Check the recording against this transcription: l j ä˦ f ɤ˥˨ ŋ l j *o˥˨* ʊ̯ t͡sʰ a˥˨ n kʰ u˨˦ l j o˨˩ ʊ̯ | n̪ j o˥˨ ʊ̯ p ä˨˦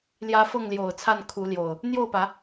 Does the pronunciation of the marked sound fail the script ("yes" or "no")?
yes